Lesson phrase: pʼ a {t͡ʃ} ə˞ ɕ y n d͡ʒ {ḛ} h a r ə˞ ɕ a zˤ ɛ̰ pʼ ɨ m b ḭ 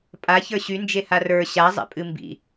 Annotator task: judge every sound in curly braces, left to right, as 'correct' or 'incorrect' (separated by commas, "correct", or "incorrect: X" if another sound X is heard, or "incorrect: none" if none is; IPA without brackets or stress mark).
incorrect: ç, incorrect: e